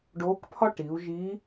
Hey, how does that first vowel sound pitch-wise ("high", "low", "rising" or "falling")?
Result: rising